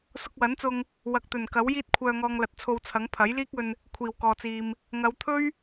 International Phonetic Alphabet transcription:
s ʊ˧ k̚ w ɐ˨˥ n t͡s ʊ˧ ŋ | w ɐ˨ k̚ t̪ ɵ˨˩ n k ɐ˨˥ w j iː˥ t̚ kʷʰ œː˧ ŋ ɔː˧ ŋ l ɐ˨ t̚ t͡sʰ o˧ w t͡sʰ ɐ˨˥ ŋ pʰ ɐ˨˥ j l iː˥ k̚ ɵ˧ n | kʷʰ iː˨˩ w k ɔː˨ t͡s iː˨ m | ŋ ɐ˨˧ w t̪ʰ ɵ˥ ɥ

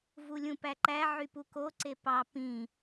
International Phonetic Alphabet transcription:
v u lʲ ũ p æ ǃ æ ʕ y p u k o ǀ e p ɑ p ĩ

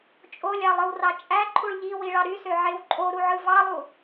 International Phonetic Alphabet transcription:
t͡ʃʼ o lʲ ɑ lˠ ɯ w r ɑ t͡ʃʼ æ ǃʰ u ɭ ʎ i w i ɭ ɑ ɾ y s ø ʕ e w ǃʼ o ɾ u ʕ ɯ v ɑ lˠ u

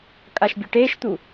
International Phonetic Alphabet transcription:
kʼ a ʃ bʲ ʊ ʈ eː ʃ t̪ u

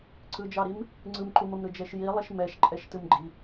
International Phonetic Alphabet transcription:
ǀ ɯ d͡ʒ ɑ ɾ i m | ŋ͡ǀ ɯ m ǃ u m ə m ɾ ɯ d͡ʒ ɛ ʃ j i lˠ i ʃ m ɛ ʃ ǃʼ ɛ ʃ t ɯ m ɡ͡ǃ i

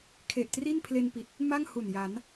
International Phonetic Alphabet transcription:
kʰ e˨˩ ʔ t r i˥˩ n pʰ l e˧ n p i˨˩ t̚ | m a˥˩ ŋ h u˨˩ n j a˩˦ n

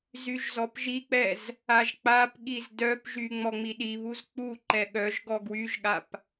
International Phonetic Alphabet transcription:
z y ʒ z ɔ p ʒ i k͡p ɛ z | a ʒ k͡p a p ɠ i z d œ p ʒ y ŋ͡m ɔ ŋ͡m i ɗ i β u z k͡p u ǃ ɛ ɠ œ ʒ ɡ ɔ ɡ w y ʒ ɠ a p

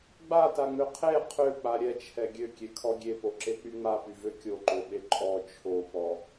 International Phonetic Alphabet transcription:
ɡ͡b a t a ŋ͡m ø qʰ e qʰ ø k͡p a ɾʲ ɛ t͡ʃʰ ɛ ɡʲ ø kʲ e kʰ ɔ ɡʲ e p o ǁ e k͡p y ŋ͡m a p y v ø kʲ o ǃ o ɓ e ǃʼ ɔ t͡ʃʰ o p ɔ

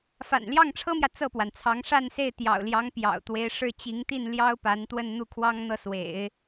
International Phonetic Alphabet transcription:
f a̰˨˩ n l j ɑ˥˩ ŋ ʈ͡ʂʰ ɤ˥ m j ä˨ t͡s ɤ˥˩ p w a˩ n t͡sʰ ɑ˧˥ ŋ ʂ a˥˧ n s e˥˩ ɪ̯ t̪ j ɑ̰˨˩ ʊ̯ l j ɑ˧˥ ŋ p j ɑ̰˨˩ ʊ̯ t̪ w e˧˥ ɪ̯ ʂ ɻ̩˥˩ t͡ɕ i˧˥ ŋ t̪ i˥˩ n l j ɑ˥ ʊ̯ p a˧˥ n t̪ w ə˥˧ n n̪ u˥˩ kʰ w ɑ˥ ŋ n̪ ɤ˥˩ s w ḛ˨˩˦ ɪ̯

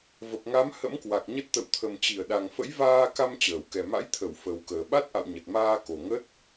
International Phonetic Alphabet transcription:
v ə˨˩ p̚ ŋ a˨˦ m h ə̰˧˥ m k w a˨˩ k̚ ɲ ə˦˥ t̚ t̪ ə̰˧˨ w t̪ʰ ə˨˩ m t͡ɕ i˧˩ ə̯ ɗ a˨˩ ŋ f ə̰˧˥ j v aː˧ k a˧ m t͡ɕ əː˧˩ w k ɛ˨˩ m a̰˧˥ j t̪ʰ ə˧˩ w f ə˨˩ w k əː˨˩ ɓ a˦˥ t̚ ʔ a̰˧˨ w ɲ ə˨˩ t̚ m aː˧ k o˨˩ ŋ ə˦˥ t̚

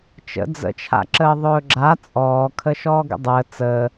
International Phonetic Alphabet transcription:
t͡ʃ ə̰ d͡z ə̰ t͡ʃʰ a̰ ǁ əː ðˤ ɵː ɡ͡ǁ a t͡sʼ ɔː kʰ ə ʃ ɔː ɡ ə̰ dˤ əː t͡s əː

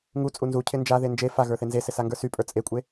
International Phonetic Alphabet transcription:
ŋ u t͡sʼ u n z u cʰ ɪ n d͡ʒ a ð e n d͡ʒ e f a ɣ ə˞ θ e n z e s ɪ s a ŋ ɡ ə˞ s y pʼ ə˞ t͡sʼ e kʷʼ e

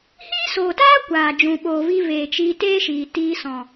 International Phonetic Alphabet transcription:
h iː˦ s oː˨ t aː˦ kʷ aː˨ d͡ʒ ũ˨ ɓ oː˨ v i˧ v eː˨ t͡ʃ iː˧ t eː˦ ʃ iː˨ t iː˧ s ɔ̃˨

